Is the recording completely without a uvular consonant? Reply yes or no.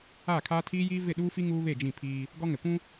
yes